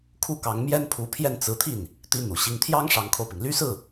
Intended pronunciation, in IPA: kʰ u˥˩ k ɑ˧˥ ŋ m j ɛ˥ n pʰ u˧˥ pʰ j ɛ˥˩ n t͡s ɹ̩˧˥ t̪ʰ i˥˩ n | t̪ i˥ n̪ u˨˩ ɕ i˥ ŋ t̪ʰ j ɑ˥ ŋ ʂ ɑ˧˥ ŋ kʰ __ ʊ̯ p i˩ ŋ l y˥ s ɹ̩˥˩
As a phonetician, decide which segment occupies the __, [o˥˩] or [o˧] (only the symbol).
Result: o˧